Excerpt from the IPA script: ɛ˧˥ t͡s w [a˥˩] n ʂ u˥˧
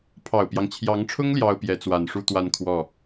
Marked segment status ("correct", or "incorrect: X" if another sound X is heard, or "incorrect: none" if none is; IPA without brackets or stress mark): incorrect: a˨˩